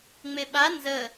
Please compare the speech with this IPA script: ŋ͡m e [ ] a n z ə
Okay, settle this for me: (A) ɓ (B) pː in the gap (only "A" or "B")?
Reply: A